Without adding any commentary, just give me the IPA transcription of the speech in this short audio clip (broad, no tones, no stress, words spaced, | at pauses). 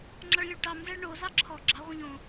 ŋ͡ǁɑɭlʲuɭʈɑmzæɭ ɳozɑ ǁʰɔ ɡ͡ǁɑʁʷĩʎ õ